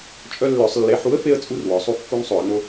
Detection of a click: absent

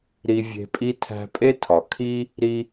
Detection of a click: absent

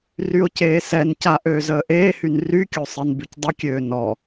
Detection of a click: absent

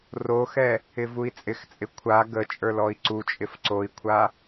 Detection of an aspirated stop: present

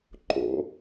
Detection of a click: present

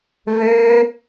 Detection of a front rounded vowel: present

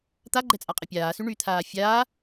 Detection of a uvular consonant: present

